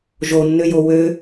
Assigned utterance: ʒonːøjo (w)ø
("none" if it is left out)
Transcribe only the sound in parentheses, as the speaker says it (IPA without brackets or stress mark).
w